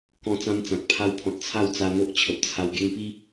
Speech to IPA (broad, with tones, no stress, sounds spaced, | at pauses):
k ɔ̃˧ t͡s ã˦ m t͡s ã˨ k̚ pʰ a˧ w pʰ ɔ̃˨ t̚ t͡sʰ a˥˧ w t͡s a˧ n̪ o˦ ʔ t͡ɕʰ ə˨ p̚ t͡sʰ a˧ w ɡ e˦ ŋ p i˦